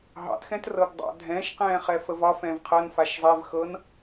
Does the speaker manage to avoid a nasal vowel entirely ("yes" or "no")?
no